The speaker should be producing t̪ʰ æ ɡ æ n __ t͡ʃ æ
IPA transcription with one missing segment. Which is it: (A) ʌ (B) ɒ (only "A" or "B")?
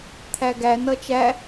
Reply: A